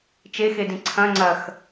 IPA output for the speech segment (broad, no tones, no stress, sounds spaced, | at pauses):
t͡ʃ e x e d ĩ ǀʰ ɐ̃ ŋ͡ǀ ɐ x